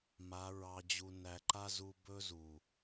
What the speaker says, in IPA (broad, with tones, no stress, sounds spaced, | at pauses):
m a˨˦ ɹ ɑ˧ d͡ʑ u˧ n æ˧ ǃ a˦ z u˧ b ɵ˦ z u˨